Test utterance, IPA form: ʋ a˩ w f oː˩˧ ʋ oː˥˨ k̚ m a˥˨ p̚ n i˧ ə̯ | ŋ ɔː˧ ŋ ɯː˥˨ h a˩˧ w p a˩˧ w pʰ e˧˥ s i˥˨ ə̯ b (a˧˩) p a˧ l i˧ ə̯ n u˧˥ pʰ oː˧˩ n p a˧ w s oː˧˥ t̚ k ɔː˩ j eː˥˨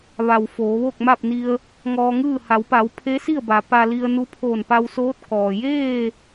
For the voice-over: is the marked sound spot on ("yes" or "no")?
no